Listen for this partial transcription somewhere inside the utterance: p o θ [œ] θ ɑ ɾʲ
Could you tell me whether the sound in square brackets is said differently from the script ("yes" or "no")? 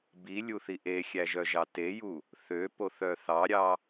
no